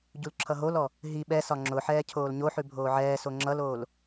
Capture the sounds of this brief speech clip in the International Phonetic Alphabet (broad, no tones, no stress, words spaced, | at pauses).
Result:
ɟulǁʰʌɦolɔ | ɦi ɓɛsɒ ŋ͡ǁʊħɛː cʰoːlɲoħʉ bʱoːʕɛːso ŋ͡ǁʌloːl